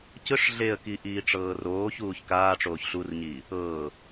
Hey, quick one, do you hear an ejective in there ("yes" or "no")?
no